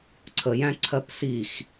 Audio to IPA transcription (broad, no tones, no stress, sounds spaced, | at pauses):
ǀʰ ə j æ̃ ǀʰ ɜ p s i x